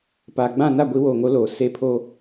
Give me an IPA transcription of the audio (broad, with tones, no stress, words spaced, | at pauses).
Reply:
paː˨ɡ͡bã˦˨ na˦˨ɡʷi˨˦woː˨ŋo˨˦ loː˨ se˦˨pʰo˦